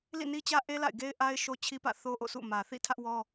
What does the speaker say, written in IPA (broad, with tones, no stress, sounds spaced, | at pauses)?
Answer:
l ḭ˦˨ n i˦ t͡ɕ ä˦ ʔ e˦ l a̰˦˨ ɪ̯ ɡ e˦ ɪ̯ ʔ a˦ ɪ̯ ʃ o˦ t͡ɕʰ i˦ p ä̰˦˨ θ o˦ ʔ o̰˦˨ s ṵ˦˨ m ä˨ θ ḭ˦˨ tʰ ä˦ ʔ w ɔ˦